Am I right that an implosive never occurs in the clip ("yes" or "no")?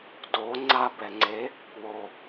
yes